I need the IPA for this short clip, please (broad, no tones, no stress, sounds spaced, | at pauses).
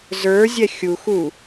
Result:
z ə˞ zʲ ɛ xʲ u x u